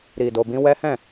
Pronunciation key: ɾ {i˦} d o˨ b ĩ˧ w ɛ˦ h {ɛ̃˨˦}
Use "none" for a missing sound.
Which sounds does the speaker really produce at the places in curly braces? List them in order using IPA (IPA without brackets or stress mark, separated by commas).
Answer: i˨, ɛ̃˦˨